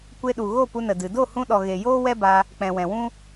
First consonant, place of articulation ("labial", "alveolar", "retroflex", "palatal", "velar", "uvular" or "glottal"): velar